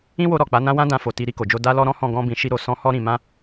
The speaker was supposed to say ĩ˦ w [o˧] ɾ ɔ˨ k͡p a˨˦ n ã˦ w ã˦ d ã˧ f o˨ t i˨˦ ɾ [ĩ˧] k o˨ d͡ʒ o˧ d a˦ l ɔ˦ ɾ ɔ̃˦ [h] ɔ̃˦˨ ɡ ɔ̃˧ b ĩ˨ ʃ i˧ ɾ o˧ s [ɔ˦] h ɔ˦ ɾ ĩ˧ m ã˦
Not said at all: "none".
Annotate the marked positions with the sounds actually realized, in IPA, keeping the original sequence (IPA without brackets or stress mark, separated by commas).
o˧, i˧, h, ɔ̃˦